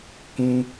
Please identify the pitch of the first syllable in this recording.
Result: low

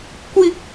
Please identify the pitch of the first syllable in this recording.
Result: high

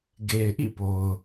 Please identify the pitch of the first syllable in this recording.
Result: low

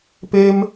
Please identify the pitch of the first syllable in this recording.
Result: high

